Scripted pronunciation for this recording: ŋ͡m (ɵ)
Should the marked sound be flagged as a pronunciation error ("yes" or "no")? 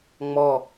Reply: yes